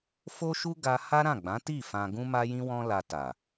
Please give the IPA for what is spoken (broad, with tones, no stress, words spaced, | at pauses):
fo˦ʃu˦ ɡa˧ ha˦ɾã˦˨ɡ͡bã˨˦ti˦˨ fã˧ ɡũ˦ma˦jĩ˦ wɔ̃˦la˧ ta˨